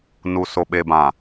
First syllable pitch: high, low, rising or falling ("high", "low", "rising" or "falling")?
low